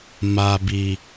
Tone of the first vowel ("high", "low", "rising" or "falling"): low